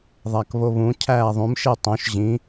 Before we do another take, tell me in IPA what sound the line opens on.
ðˤ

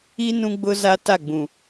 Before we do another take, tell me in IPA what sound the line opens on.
i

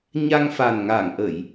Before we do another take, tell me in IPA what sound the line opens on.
ɲ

